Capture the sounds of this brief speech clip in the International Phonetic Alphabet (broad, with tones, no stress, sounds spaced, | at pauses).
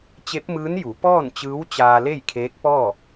t͡ɕ e˧˥ p̚ m ɯː˧˥ n j u˩˧ p ɔː˥˨ n t͡ɕ ɯː˧˥ w t͡ɕ aː˧ l e˥˨ j kʰ eː˧˥ k̚ p ɔː˥˨